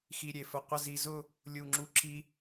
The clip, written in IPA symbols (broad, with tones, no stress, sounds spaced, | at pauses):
x i˧ ɾʲ e˩˧ f ə˧˩ qʷ ə˥˧ z i˧ z ʊ˥˧ | lʲ u˧˩ ŋ͡ǁ u˧ ǁʰ i˧